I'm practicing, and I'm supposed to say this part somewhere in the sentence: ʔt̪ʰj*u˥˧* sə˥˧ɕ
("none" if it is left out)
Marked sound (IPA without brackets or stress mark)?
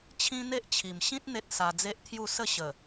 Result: u˥˧